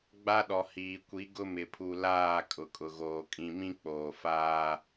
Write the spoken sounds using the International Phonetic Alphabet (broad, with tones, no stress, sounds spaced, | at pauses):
ɡ͡b a˦ ɗ ɔ˨ h iː˨ kʷ i˨˦ ɡ ʊ˦ m ɪ˨ pʰ u˨ l aː˦˨ kʼ ʊ˨ kʼ ʊ˨ ɣ oː˨ kʼ ĩ˨ m ĩ˦ k͡p oː˨ f aː˦